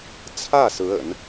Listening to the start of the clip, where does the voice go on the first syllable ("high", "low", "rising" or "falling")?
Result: falling